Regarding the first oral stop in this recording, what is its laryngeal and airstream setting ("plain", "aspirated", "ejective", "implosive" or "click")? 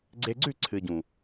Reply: click